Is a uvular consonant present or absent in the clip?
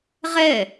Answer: present